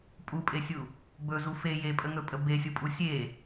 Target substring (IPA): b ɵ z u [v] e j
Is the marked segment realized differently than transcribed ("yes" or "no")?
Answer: yes